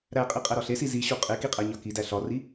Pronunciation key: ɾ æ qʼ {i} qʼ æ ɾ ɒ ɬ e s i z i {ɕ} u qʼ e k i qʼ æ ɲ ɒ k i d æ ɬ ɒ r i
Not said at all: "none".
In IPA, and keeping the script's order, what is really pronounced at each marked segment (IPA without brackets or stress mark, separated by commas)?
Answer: i, ɕ